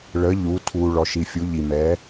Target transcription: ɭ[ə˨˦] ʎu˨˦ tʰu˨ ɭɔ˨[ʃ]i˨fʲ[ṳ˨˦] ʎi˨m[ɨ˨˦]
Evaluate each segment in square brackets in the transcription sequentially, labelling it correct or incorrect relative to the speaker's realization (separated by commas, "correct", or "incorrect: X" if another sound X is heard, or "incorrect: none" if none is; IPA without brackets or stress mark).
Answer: correct, correct, incorrect: u˨˦, incorrect: ɛ˨˦